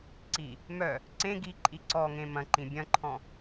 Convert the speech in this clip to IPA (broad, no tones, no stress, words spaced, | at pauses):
ǀi | mœ | ǀẽ ɡiǃʼi ǀɔŋẽ mɐ̃ǃĩ bʲɐ̃ǃʰɔ̃